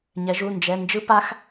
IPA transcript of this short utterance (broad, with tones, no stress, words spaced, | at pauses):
ɲɛ˩˧ʒu˩˧˩nd͡ʒɛ˩˧˩ nd͡ʒɯ˦˥pa˦˥x